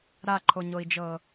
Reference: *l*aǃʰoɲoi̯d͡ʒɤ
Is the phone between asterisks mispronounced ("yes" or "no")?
yes